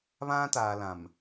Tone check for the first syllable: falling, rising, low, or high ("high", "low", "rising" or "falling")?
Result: high